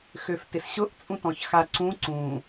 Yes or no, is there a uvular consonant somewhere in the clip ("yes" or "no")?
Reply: no